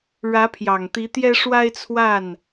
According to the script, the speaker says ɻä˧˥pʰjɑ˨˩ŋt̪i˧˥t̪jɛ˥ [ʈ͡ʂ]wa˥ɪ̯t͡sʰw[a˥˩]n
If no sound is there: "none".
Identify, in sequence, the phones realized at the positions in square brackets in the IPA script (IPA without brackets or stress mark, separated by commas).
ʂ, a˥˩